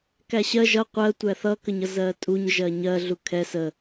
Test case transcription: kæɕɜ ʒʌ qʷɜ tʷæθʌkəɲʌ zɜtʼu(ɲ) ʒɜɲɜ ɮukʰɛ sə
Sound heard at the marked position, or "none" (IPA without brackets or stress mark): ɲ